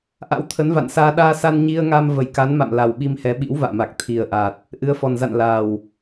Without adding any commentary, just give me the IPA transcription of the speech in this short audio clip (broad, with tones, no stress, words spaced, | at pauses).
ʔa̰˧˥wt̪ʰə˨˦nva̰˧˨nsaː˧ ɗaː˧sa˧n ɲi˧ə̯ŋa˧m və˧˩jka˨˦nma̰˧˨m la˨˩wɓi˧mhɛ˨˦ ɓḭ˧˥wva̰ː˧˨ma˨˩k̚ t̪ʰi˨˩ə̯ʔa˨˩t̚ | ʔɨ˨˦ə̯fɔ˨˩nza̰˧˨n la˨˩w